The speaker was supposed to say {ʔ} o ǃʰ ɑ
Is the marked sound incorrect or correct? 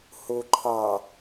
incorrect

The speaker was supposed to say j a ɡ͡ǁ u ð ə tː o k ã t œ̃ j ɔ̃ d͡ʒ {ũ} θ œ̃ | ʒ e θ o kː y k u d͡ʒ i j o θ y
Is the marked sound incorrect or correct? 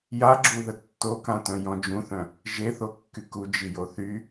correct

